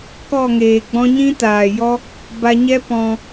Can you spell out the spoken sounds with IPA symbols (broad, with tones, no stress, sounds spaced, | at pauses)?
k ɔ˦˨ ŋ eː˨ ɡ͡b ɔ̃˦ ɲ ĩ˦ t aː˨ j ɔ˦ | b a˧ ɲ ɛ˦ p ɔ̃˧